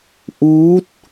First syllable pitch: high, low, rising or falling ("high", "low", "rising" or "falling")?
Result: rising